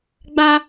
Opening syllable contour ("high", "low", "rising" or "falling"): high